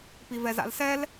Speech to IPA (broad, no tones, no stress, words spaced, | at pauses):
pivɛza̰lsɛl